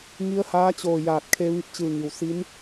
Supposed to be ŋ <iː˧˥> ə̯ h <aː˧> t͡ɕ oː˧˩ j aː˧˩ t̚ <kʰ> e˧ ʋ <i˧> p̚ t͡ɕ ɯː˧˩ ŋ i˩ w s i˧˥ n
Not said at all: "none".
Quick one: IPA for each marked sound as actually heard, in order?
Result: i˧˥, aː˧˥, kʰ, i˧

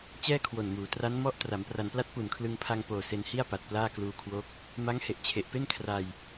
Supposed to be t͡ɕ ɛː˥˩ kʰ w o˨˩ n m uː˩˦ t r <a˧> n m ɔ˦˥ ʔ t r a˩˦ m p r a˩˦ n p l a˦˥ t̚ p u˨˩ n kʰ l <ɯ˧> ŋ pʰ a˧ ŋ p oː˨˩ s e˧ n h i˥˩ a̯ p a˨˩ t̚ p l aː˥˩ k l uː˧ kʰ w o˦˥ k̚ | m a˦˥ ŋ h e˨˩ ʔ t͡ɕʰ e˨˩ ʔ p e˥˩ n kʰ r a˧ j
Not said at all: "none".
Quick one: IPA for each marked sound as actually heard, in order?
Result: a˦˥, ɯ˧

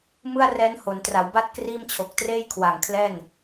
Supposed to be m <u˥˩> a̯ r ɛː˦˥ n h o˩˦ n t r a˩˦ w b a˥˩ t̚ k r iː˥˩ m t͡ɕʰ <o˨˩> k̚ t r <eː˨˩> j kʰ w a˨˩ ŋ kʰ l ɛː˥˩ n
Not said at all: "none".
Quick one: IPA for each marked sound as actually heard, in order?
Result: ɯ˥˩, o˨˩, eː˥˩

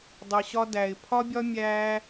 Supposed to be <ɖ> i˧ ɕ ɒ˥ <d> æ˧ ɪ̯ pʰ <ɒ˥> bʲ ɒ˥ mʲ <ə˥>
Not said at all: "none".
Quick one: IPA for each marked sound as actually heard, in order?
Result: dˤ, d, ɒ˥, æ˥

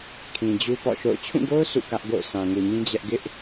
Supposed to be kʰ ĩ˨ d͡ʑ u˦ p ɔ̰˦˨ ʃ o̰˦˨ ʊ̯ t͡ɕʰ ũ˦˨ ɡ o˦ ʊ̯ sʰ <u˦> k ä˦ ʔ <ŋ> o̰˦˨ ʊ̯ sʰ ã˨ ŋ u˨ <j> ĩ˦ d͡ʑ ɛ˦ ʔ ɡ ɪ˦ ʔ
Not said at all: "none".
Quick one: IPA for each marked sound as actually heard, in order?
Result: ṵ˦˨, ɡ, ɲ

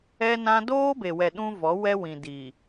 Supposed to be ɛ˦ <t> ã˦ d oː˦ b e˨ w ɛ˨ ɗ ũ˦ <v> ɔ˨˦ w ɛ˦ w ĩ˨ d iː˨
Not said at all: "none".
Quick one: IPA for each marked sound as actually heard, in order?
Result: n, v

